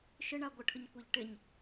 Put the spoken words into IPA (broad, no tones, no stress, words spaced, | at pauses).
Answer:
ʃɪɳa ɡʷɪʈʰʊɲkʷɛʎ ʈɪɲ